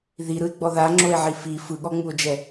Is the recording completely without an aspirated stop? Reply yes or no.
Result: yes